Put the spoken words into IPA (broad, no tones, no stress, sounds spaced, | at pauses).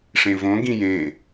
ʂ ẽ v õ ɡ ĩ j ẽ